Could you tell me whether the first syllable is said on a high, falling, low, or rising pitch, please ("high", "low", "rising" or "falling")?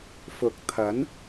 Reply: rising